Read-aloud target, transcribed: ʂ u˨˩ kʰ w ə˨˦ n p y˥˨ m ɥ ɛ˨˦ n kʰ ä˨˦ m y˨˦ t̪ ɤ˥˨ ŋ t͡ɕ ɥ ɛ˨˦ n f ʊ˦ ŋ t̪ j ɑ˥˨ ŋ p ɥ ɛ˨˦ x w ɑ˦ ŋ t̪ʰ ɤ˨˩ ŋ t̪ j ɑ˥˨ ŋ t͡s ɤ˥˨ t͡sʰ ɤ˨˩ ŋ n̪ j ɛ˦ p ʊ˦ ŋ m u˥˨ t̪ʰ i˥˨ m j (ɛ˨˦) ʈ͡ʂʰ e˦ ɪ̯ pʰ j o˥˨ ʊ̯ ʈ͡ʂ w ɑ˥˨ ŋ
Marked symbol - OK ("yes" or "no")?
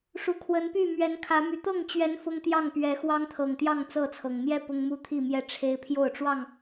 no